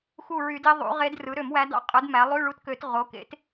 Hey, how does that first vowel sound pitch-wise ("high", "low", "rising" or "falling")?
falling